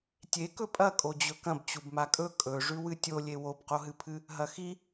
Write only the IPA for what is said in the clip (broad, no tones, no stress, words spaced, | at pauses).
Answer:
tʲekɵ pʼɐkʼod͡ʑɵ kɐ̃b t͡ɕubmakʼɵ kʼɵʐʉ wɨtʲolʲe wobqoɦɨpʰɨ | ɦɐxi